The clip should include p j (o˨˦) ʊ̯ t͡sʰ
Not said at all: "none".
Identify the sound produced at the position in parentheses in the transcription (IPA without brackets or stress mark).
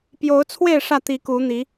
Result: o˨˦